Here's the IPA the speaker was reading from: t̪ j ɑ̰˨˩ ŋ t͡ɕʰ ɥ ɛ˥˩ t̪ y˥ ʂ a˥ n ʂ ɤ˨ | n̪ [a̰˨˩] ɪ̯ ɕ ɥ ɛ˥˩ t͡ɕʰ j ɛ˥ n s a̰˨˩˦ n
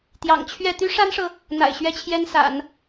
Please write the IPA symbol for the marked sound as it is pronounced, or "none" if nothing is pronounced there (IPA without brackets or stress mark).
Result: a̰˨˩